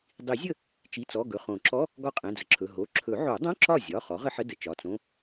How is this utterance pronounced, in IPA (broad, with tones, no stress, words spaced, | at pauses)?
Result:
dˤi˨˩˦zʲə˥˩ | t͡ʃi˩˧˩t͡sɔ˩˧˩ ɡɵ˩˧˩χõ˨˩˦ǁɔ˧˥˧ | ɡɒ˥˩qʼɛ̃˩˧˩d͡zə˩ǁʰɵ˩˧˩ ɦo˩˧˩ ǁʰɵ˨˩˦ʕo˨˩˦dˤõ˧˥˧ ǁɒ˥˩zʲɒ˩˧˩ χɔ˩˥ʁə˧˥˧ħə˧˥˧ də˩ t͡ʃɒ˩˧˩t͡sõ˧˥˧